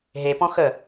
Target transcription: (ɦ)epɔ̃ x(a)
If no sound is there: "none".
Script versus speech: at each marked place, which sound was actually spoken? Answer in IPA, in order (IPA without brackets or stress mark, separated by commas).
ɦ, ə